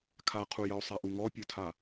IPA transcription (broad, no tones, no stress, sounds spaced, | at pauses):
kʰ a qʰ u j ə o̯ sˤ a ʔ u ŋ ɔ pʲ o tʰ a